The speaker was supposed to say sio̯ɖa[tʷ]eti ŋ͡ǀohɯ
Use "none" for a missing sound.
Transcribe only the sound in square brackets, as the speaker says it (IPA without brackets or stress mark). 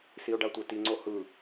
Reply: tʷ